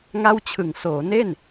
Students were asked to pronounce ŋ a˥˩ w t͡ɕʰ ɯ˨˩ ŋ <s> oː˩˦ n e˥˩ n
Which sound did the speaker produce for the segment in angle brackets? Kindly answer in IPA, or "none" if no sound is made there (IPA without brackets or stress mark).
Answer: s